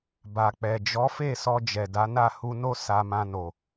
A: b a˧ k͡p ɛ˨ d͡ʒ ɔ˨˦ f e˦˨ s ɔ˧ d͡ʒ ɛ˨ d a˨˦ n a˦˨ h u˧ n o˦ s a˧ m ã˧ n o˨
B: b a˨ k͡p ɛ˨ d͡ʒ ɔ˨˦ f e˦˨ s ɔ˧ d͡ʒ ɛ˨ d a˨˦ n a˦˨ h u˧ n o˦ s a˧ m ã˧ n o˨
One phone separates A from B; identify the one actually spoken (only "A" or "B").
B